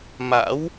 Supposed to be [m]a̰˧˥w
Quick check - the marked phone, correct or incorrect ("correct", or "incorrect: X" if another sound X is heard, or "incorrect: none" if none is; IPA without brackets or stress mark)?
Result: correct